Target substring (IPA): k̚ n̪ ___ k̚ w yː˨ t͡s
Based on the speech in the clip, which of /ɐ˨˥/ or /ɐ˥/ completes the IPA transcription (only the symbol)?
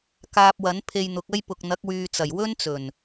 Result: ɐ˨˥